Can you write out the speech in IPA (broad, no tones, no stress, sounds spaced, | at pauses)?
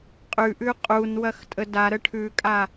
qʼ ʉ ʔ ʉ qʼ u n w ɐ x tʼ ə d a ɾ ə ʈʰ ʉ kʼ a